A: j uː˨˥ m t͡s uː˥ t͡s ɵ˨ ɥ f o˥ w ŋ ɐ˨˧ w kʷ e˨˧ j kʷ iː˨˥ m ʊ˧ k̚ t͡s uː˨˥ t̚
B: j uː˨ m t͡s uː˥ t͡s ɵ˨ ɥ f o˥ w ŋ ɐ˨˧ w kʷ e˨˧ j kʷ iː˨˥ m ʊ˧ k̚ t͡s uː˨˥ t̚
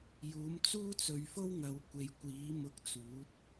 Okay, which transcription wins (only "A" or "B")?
A